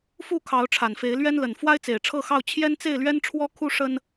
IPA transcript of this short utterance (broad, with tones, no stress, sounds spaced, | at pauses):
f u˥˨ kʰ ɑ˨˦ ʊ̯ ʈ͡ʂʰ a˨˩ n f e˨˦ ɪ̯ l ɥ ɛ˦ n l ə˨˩ n f w a˦ ɪ̯ t͡s e˨˩ ɪ̯ ʈ͡ʂʰ ɤ˥˨ x ɑ˥˨ ʊ̯ t͡ɕʰ j ɛ˦ n t͡s e˥˨ ɪ̯ l ɥ ɛ˦ n ʈ͡ʂʰ w ɔ˦ kʰ u˦ ʂ ə˦ n